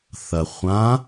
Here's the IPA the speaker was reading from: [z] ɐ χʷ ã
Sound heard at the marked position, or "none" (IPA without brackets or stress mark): θ